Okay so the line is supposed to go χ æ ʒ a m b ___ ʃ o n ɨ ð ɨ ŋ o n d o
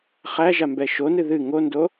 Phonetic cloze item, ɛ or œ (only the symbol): ɛ